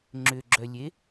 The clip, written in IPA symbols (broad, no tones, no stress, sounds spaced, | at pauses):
ŋ͡ǁ ʏ ɡ͡ǁ œ lʲ e